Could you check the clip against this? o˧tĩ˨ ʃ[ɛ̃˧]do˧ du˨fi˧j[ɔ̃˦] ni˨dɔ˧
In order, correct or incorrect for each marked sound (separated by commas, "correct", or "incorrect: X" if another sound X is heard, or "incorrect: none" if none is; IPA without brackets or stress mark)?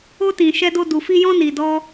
incorrect: ɛ˧, incorrect: ɔ̃˧